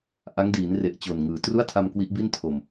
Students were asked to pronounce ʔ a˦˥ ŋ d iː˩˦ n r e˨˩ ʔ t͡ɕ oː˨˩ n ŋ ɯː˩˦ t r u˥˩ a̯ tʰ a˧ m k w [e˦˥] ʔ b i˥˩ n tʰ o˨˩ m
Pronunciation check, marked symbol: incorrect: i˦˥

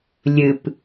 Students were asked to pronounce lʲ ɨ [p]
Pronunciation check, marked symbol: correct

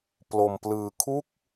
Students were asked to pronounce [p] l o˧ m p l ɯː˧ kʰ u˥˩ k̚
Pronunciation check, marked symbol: correct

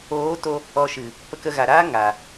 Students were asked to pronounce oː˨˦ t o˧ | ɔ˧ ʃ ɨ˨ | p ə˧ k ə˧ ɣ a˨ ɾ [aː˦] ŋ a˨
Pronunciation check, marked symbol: correct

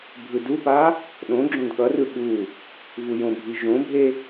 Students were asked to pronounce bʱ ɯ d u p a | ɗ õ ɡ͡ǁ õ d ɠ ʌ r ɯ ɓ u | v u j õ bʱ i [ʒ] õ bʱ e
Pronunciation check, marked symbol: correct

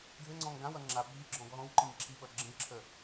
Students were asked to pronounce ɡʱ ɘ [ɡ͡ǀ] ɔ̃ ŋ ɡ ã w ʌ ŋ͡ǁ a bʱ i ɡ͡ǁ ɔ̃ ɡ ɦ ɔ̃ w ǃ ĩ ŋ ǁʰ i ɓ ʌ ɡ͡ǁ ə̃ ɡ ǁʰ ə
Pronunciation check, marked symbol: incorrect: ŋ͡ǀ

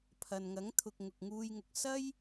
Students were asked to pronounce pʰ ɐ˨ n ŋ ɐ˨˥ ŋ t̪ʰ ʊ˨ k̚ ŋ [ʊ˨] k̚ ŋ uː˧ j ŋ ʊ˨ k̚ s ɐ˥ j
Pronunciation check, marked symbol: correct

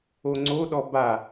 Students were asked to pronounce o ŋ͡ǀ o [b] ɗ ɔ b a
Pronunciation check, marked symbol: incorrect: none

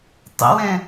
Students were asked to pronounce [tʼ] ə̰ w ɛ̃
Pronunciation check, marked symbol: incorrect: tˤ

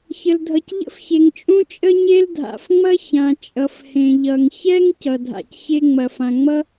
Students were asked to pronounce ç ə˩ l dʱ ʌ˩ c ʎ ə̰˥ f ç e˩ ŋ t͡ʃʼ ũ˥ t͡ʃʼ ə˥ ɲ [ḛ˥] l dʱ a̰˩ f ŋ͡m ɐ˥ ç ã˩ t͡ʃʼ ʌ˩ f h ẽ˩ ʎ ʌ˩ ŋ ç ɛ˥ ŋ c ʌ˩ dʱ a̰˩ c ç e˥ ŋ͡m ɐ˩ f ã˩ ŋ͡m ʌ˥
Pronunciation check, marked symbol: incorrect: e˥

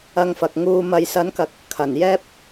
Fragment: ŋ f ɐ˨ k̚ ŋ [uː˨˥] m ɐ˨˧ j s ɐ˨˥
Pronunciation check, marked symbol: incorrect: uː˧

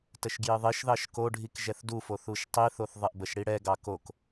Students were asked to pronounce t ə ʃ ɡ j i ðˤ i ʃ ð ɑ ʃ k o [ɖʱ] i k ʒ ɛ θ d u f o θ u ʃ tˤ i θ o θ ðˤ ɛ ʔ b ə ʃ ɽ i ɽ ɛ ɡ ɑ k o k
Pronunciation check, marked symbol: correct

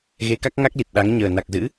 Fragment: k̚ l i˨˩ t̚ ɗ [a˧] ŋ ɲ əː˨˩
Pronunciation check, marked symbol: incorrect: a˨˦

